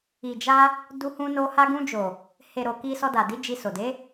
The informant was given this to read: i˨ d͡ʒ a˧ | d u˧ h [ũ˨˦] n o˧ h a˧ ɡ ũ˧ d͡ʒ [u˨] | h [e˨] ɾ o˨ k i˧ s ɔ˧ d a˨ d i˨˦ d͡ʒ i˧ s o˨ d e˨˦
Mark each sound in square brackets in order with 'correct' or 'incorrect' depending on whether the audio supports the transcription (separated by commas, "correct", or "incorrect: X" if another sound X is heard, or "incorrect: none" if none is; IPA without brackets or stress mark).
incorrect: ũ˧, incorrect: o˨, correct